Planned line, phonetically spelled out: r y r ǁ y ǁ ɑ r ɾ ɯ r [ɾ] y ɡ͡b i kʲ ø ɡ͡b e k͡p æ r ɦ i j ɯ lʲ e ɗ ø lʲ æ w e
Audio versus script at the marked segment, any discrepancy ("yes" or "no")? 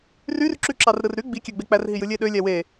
no